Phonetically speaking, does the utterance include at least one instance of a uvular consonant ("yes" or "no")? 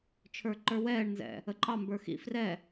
no